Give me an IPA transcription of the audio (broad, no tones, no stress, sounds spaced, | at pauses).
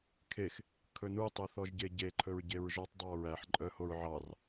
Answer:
kʰ e x | kʰ ɵ n u tˤ ɵ θ ɔ ʒ ɟ e ɟ e ǃʰ ɵ ɹ ɟ e ɹ ʒ ɔ tˤ dˤ ɑ ɹ æ ħ ǃʼ œ h o ɹ ʕ ɑ r